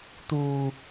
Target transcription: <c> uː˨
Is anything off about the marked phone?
yes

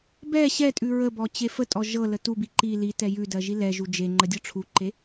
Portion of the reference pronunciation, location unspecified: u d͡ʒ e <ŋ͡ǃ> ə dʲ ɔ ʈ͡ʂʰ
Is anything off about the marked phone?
no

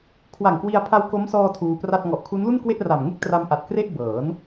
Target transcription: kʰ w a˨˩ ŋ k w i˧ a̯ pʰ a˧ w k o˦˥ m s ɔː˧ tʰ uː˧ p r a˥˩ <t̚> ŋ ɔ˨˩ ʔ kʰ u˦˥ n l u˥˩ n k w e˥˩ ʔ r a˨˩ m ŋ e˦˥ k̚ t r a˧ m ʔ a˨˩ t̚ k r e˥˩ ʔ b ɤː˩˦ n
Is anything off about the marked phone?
no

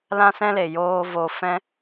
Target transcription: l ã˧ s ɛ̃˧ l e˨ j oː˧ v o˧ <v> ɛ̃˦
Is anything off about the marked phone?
yes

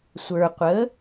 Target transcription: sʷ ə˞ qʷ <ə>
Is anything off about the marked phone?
no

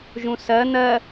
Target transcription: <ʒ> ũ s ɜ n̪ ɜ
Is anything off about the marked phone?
no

